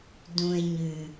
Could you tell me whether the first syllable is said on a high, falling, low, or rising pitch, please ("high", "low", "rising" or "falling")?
low